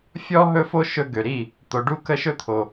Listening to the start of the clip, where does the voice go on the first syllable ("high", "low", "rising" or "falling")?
high